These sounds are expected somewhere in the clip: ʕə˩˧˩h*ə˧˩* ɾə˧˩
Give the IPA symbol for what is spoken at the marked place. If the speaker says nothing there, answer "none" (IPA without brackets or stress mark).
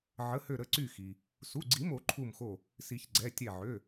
ø˧˩